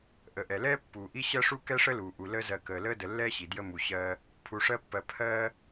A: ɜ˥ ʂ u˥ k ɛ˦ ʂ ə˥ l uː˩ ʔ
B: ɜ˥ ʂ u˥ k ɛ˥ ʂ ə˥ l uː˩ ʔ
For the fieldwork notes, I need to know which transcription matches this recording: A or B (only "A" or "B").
B